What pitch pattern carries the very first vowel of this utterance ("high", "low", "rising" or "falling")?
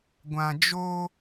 low